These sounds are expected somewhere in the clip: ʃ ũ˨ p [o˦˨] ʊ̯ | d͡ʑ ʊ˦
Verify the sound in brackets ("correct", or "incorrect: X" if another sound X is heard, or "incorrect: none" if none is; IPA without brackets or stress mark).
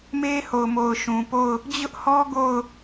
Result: correct